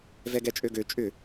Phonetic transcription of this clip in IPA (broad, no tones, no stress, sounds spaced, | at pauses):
v ɛ ɡ ɛ t͡ʃʼ ø ɡ ø t͡ʃʼ ʏ